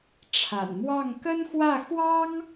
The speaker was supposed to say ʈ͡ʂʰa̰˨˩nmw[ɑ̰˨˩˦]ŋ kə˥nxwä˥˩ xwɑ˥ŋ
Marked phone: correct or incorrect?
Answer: incorrect